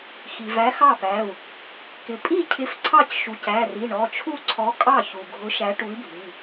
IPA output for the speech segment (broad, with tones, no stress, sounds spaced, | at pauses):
x i˩ v æ˨˥ x ɑ˥˩ p æ˩˧˩ u̯ | k ɪ˩ pʼ i˥˩ cʰ ɪ˨˥ f ǀʰ ɑ˥˩ c ʃ u˩˧˩ c æ˩˧˩ r i˩˧˩ ɳ ɔ˩˧˩ t͡ʃʰ u˥˩ ǀʰ ɔ˨˥ kʼ ɑ˥˩ ç u˩ ɡʱ ʊ˨˥ ʃ æ˨˥ ʈ u˨˥ i̯ bʱ i˩˧˩